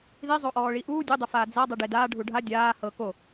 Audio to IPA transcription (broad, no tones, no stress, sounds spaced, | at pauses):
ð i zˤ o ʔ ɔː ɭ i ʔ uː dʲ u dˤ ɛ f aː d͡z a dˤ ɯ ɖ e d aː ɖʱ u ɖʱ a dʲ aː h ɤ k o